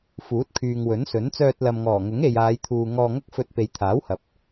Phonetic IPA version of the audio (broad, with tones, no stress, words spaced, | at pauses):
fuː˨˥t̚kʰyː˨ŋwɵ˨˥nsɵ˨˥n t͡sœː˧t̚lɐ˨mŋɔː˨˩ ŋʊ˨˥ŋe˨jaː˨˧jt̪ʰuː˨ ŋɔː˧ŋɐ˥k̚fɵ˧t̚ pe˨˧jt̪ʰaː˨˥whɐ˨p̚